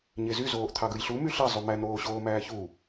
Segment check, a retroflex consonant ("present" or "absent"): absent